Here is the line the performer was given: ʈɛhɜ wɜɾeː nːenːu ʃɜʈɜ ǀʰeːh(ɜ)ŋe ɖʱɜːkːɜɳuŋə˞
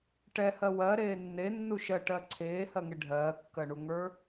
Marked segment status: correct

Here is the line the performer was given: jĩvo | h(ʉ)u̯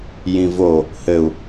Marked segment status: incorrect: ɘ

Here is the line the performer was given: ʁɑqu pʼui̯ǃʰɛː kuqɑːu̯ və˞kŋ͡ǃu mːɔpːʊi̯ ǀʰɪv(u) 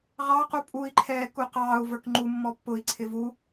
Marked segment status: correct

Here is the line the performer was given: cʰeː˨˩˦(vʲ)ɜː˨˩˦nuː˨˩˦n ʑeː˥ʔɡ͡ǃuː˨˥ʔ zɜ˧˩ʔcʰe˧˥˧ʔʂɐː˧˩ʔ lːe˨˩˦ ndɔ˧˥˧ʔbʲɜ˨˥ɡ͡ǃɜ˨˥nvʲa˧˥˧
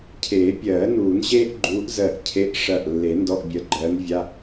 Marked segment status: incorrect: pʲ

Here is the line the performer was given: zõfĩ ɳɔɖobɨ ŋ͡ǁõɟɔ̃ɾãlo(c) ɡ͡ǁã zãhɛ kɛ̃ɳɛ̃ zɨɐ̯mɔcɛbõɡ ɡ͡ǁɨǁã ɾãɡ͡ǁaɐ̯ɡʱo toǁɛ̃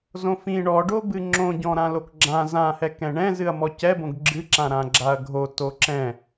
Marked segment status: incorrect: k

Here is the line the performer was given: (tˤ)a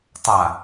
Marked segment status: correct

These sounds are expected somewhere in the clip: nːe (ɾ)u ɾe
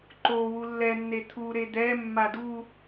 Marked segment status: incorrect: t̪ʰ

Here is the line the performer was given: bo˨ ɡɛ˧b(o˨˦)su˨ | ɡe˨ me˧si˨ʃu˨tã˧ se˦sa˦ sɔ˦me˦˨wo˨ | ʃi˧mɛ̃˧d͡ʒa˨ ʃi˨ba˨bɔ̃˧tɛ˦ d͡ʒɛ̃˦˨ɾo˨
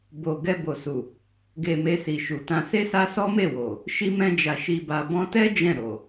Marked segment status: incorrect: o˨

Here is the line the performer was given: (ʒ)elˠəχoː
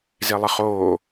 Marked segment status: incorrect: z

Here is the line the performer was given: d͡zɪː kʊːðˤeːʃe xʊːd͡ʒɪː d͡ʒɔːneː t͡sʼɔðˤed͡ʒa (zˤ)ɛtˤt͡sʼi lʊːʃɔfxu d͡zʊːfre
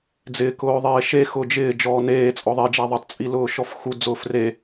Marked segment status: incorrect: ðˤ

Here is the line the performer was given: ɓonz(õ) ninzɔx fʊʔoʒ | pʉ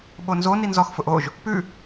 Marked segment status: incorrect: o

